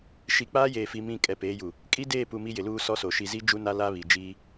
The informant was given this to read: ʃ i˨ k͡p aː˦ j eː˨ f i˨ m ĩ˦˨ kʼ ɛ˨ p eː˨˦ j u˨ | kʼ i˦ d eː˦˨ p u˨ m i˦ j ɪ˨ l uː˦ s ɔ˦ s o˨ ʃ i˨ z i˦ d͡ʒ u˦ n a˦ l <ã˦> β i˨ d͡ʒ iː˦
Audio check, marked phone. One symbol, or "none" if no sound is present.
a˦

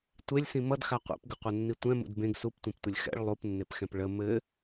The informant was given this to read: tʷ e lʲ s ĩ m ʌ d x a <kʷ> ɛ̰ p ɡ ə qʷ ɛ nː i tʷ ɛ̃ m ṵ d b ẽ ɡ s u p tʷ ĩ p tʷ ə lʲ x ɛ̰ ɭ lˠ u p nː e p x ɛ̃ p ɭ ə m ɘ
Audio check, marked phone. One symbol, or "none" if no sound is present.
qʷ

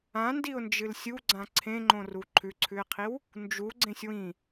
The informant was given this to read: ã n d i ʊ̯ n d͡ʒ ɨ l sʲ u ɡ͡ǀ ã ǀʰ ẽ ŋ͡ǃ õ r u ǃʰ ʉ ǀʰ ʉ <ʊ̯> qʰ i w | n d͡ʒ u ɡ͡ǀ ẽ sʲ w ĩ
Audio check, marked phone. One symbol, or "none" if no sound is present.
ɪ̯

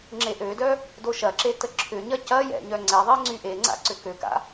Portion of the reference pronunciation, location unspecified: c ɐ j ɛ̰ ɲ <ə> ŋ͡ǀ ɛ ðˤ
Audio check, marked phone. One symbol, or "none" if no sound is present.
œ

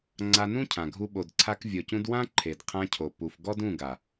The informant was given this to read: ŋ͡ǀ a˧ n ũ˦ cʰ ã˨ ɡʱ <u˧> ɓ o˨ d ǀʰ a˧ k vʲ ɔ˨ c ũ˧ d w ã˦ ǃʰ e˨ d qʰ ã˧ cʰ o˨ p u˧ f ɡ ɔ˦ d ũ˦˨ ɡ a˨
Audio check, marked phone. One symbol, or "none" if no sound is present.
u˧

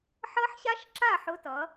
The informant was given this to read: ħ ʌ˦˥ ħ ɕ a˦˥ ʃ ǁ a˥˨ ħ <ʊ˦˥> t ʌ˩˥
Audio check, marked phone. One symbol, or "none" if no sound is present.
ʊ˦˥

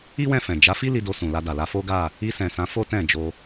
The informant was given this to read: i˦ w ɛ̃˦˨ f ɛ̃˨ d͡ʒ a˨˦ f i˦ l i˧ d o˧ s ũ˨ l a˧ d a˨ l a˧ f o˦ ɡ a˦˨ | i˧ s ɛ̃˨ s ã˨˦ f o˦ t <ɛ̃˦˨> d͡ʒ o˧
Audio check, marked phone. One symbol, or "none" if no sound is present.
ɛ̃˦˨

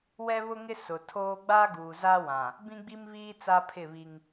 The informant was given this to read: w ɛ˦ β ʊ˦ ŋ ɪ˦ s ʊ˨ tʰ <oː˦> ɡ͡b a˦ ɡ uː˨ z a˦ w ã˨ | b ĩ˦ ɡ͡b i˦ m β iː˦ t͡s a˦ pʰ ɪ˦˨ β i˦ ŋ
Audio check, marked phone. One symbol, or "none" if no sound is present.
oː˦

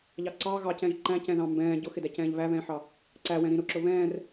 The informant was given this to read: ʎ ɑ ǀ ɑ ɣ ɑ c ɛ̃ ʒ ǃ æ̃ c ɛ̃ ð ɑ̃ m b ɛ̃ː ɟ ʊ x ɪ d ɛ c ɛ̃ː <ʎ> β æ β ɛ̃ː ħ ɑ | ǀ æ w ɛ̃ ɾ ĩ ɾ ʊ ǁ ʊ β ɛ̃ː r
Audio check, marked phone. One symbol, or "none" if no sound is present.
ʎ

